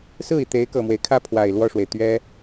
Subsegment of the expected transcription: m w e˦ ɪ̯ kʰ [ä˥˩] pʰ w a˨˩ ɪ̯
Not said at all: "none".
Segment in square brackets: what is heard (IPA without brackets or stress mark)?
ä˥˩